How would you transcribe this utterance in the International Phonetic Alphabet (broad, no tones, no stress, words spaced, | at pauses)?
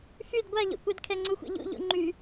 fyd ɡʷaʎo̰kʷɛd kʰɛŋ͡ǀuxʷḛʎṵ ʎṵŋ͡ǃy